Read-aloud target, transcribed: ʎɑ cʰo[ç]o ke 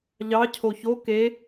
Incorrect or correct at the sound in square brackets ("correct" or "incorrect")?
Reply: correct